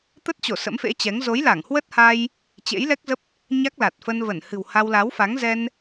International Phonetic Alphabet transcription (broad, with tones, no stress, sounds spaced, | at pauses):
t̪ ə˦˥ t̚ t͡ɕ o˧˩ s ə̰˧˥ m f ḛ˧˥ t͡ɕ ɛ˨˦ ŋ z o˨˦ j l a˧˩ ŋ h w ə˦˥ t̚ h a˧ j | t͡ɕ ḛ˧˥ j l ɛ˦˥ k̚ z ə˦˥ p̚ | ɲ a˦˥ k̚ l a˨˩ t̚ f ə˧ n v ə˧˩ n h ɨ̤˨˩ w h a˧ w l a˨˦ w f a˨˦ ŋ z ɛ˧ n